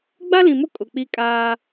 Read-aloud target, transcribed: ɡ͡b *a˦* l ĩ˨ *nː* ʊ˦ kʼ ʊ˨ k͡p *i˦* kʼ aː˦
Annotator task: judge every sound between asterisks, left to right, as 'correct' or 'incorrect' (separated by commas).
correct, incorrect, correct